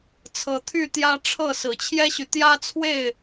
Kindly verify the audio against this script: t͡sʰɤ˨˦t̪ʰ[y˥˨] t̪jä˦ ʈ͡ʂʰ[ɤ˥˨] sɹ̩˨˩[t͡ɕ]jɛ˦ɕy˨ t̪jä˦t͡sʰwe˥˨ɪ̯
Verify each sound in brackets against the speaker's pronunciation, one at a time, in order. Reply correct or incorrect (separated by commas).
correct, correct, incorrect